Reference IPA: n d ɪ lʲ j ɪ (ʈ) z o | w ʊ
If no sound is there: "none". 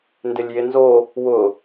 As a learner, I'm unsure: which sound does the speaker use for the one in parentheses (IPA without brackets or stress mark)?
n